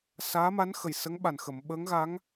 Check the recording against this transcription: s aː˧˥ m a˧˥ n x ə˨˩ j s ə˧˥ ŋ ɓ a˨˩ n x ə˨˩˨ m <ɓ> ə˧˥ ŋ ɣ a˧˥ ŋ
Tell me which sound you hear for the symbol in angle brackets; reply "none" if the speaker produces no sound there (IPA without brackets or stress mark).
ɓ